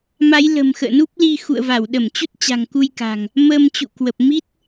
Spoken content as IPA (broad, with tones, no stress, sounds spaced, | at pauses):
m a˨˦ j l ə̤˨˩ m x ə̰ː˧˨ n u˦˥ p̚ l i˧ x ṵ˧˨ ə̯ v a˧˩ w ɗ ə˧˩ m t͡ɕ u˦˥ t̚ t͡ɕ a̤˨˩ ŋ k u˧ j k a̤˨˩ ŋ | m əː˧ m t͡ɕ ṵ˧˨ k w ə˨˩ p̚ m i˦˥ t̚